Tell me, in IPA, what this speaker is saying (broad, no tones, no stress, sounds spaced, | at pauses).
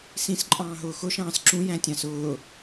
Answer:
s ĩ s ǃʼ ɑ̃ː ɦ ʊː x ʊ ʃ ɑ̃ː s ǁ ũ j æ̃ tʲ ɑ̃ s ʊː